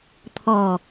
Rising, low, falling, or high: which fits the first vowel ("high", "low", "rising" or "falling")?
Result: low